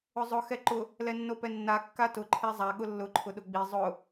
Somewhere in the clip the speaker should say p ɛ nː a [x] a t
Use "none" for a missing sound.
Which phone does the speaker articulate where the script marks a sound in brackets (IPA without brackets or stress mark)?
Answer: kː